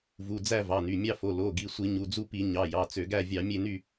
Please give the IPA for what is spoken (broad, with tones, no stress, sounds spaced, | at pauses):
v u˩˧˩ d͡z æ˦˨ v ɑ˩˧˩ n y˩˧˩ mʲ ɑ˦˨ f o˩˧˩ l o˩˧˩ ɡ i˩˧˩ sʷ i˧˩˧ ɲ u˩˧˩ d͡z u˦˨ p i˧˩˧ ɲ ɑ˩˧˩ j ɑ˩˧˩ t͡s ø˧˩˧ ɡ æ˦˨ vʲ ɑ˧˩˧ mʲ e˦˨ n y˦˨